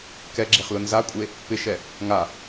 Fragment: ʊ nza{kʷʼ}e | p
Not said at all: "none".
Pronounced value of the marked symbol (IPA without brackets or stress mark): kʷʼ